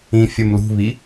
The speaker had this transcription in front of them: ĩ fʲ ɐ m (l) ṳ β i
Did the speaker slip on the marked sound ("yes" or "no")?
no